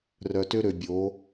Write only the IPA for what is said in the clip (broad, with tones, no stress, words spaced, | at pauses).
rœ˨tø˦ɾø˨bʲo˨˦